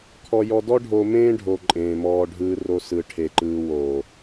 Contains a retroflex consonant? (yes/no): yes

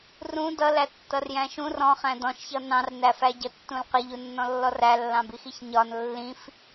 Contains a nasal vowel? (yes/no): yes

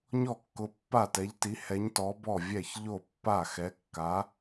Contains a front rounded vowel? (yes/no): no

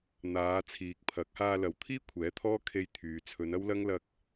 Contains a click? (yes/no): no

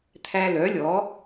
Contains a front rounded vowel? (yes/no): yes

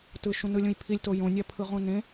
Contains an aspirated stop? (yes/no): yes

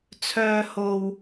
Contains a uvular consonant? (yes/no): no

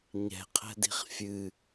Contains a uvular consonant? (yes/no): yes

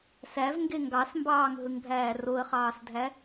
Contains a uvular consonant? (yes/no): yes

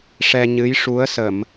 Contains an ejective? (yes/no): no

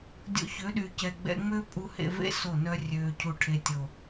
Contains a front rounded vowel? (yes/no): yes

